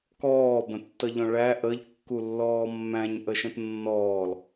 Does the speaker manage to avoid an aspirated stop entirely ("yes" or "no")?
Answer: yes